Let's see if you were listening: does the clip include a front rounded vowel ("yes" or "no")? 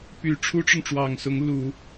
yes